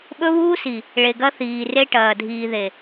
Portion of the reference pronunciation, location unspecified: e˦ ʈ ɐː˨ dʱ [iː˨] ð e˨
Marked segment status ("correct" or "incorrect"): correct